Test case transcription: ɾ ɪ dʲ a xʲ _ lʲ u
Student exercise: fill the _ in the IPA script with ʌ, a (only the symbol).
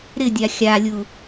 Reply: a